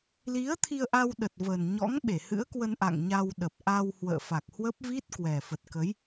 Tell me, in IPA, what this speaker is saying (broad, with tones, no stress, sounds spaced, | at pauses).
l i˨˦ ə̯ t̪ʰ i˧ ə̯ ʔ a˧ w ɗ ə˨˩ t̚ v ə˨˩ n ɲ ɔ̰˧˥ ŋ ɓ e˧˩ h ɨ̰˧˥ ə̯ k w ə˧ n ʔ a̰˧˨ ŋ ɲ a˧ w ɗ ə˨˩ p̚ ʔ a˧ w h w ə̰ː˧˨ f a˨˩ k̚ h w ə˦˥ p̚ v i˦˥ t̚ k w ɛ˨˩ f ə˨˩ t̚ k ə˨˦ j